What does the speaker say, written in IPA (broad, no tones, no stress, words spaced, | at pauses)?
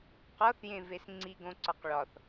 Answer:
qɒθjẽves ŋ͡ǀiɡõǀɒq ɭɒθ